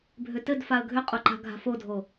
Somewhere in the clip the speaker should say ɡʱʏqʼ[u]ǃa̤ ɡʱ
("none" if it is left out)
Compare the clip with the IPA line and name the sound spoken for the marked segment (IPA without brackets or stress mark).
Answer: o